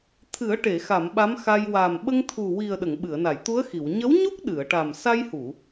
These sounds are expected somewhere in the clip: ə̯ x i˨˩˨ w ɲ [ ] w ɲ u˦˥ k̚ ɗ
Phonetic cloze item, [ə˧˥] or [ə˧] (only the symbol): ə˧˥